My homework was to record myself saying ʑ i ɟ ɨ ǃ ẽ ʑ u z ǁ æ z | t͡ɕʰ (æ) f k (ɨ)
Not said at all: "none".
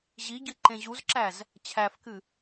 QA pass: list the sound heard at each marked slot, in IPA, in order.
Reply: æ, ɨ

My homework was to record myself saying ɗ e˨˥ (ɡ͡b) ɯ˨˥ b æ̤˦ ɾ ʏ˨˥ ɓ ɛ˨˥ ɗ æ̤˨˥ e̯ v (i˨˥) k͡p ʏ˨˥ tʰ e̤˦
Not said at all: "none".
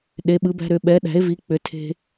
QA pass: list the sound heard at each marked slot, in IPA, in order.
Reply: ɓ, i˨˥

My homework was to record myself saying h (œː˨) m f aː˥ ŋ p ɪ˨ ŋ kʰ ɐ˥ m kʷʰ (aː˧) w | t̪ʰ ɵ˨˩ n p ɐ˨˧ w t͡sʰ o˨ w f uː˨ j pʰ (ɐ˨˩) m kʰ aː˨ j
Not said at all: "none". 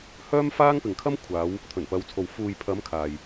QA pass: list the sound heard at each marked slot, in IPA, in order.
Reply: œː˥, aː˨˧, ɐ˨˧

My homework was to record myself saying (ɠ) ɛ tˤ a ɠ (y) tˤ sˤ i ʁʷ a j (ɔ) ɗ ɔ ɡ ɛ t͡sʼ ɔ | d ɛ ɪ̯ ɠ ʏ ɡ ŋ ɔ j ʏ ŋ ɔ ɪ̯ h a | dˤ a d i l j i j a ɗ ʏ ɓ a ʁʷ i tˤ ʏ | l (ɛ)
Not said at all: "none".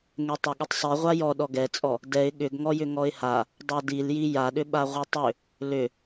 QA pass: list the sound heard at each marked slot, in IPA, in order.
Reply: ŋ, ʏ, ɔ, ʏ

